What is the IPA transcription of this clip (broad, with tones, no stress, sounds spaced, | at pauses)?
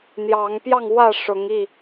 n̪ j ɑ˨˦ ŋ p j ɑ˥˨ ŋ w ä˥˨ ʂ ʊ˨˦ ŋ i˥˨